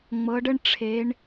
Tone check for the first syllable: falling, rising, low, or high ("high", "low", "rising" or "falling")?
rising